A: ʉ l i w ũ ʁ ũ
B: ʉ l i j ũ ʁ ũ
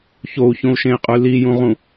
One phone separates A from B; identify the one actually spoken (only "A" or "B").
B